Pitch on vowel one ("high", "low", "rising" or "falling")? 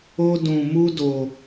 high